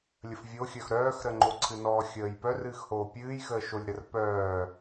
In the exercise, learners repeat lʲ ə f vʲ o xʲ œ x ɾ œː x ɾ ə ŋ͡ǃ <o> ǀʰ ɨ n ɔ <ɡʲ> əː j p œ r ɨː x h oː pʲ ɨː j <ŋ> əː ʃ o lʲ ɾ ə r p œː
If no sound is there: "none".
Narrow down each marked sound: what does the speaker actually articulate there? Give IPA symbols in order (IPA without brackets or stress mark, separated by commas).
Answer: o, xʲ, x